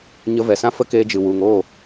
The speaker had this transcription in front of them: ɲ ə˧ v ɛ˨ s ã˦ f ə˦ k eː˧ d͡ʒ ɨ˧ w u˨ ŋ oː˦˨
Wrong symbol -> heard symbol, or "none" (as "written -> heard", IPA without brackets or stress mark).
ɨ˧ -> ɨ˨